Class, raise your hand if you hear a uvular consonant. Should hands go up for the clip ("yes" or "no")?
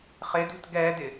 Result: yes